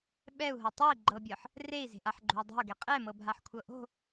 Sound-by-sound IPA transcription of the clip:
ɓ ɛ u̯ ɦ ɤ tˤ o i̯ ɡ͡ǃ ɤ bʲ ɤ ħ | r e i̯ z e̤ ʔ a ħ ɡ͡ǃ o̤ u̯ dˤ e̤ u̯ ɡ ɛ qʼ ɛ m ɤ bʱ a ħ kʷʰ ɤ ʔ o̤

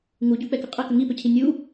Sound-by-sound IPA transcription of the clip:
ŋ u ɟ u k͡p ɛ k ʏ qʼ ə k ə ŋ i p ʏ cʰ i nʲ u

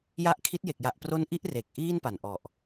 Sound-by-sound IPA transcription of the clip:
j a˦˥ ʔ kʰ i˦˥ t̚ j e˨˩ k̚ j a˨˩ ʔ p r o˦˥ n ʔ i˦˥ ʔ r e˨˩ k̚ ʔ iː˥˩ n p a˨˩ n ʔ ɔ˨˩ ʔ

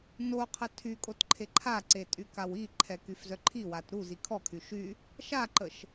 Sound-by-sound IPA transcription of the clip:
n o qʰ ə tʰ y kʼ o t ǃʰ e ǃʰ a ǀ e tʼ y k a w i ǃʰ ɛ k y f z œ ǃʰ i w a t ɾ u z i kʰ ɔ kʰ y ʃ y | ʃ a ǃ ə ʃ

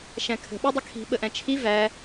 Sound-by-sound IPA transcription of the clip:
ʃ æ̃ kʰ ə̤ ɓ ɜ dˤ ə kʰ i̤ ɓ ə ʔ æ̃ t͡ʃʰ i v æ

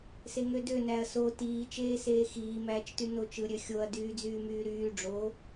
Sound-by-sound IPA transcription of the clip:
s e ŋ ø d ø n æ ɐ̯ s o t iː t͡ʃ eː s eː x iː m æː t͡ʃ t y n o t͡ʃ ɯ ɾʲ ø xʲ o ɐ̯ d yː d͡z yː m yː ɾ yː ɖ͡ʐ o

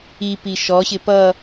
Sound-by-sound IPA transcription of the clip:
i p i ʃ ɔ ɕ ɪ p ʌ

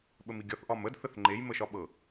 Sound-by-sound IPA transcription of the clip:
ɓ ə m i ɡʲ ɒ θ ʔ ɒ m ə d θ ə θ ŋ͡ǃ e j m ə ʃ ɒ ɓ ɤ

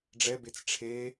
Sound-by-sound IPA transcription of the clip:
ɖ͡ʐ ɛ b e t͡s ʈ͡ʂʰ e

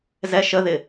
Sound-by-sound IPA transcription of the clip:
z ɛ ʃ ə ð ɪ

